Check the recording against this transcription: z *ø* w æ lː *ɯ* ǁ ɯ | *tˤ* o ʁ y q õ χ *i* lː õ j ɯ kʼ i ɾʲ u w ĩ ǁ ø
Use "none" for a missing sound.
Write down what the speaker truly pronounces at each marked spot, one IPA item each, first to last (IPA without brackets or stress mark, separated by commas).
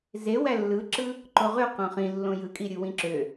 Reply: e, ɯ, ǃ, ĩ